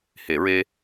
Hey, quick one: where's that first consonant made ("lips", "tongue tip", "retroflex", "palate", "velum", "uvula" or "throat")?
throat